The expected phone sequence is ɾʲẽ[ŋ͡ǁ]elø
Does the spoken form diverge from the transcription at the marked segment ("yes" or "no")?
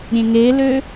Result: yes